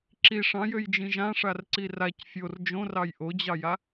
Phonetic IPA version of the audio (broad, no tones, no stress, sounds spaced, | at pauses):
ǁ i ʂ ɑ̃ j ø j d͡ʒ ĩ ʒ ã ʂ a r ǀ i r a c fʲ o r d͡ʒ õ r ɑ j ʔ o d͡ʑ ɑ j a